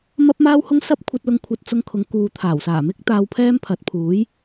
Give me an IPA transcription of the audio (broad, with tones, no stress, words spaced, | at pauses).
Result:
mɐ˥p̚maː˥w hʊ˥ŋ sɐ˥p̚kʷʰɐ˧t̚ lʊ˧ŋkʷʰɐ˧t̚t͡sʊ˧ŋkʰʊ˨˧ŋ kuː˨t̪ʰaː˨˩wsaː˨˩mɪ˥k̚ t̪aː˧wpʰɛː˥mpʰɐ˨˥t̚ pʰuː˨˥j